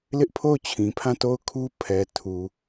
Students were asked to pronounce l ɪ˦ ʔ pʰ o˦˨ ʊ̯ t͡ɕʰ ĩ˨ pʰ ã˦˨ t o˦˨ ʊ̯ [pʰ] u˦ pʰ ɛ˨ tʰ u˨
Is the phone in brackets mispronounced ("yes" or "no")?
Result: yes